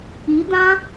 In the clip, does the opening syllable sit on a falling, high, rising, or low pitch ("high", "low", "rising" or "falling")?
rising